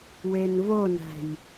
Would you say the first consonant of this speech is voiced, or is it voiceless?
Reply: voiced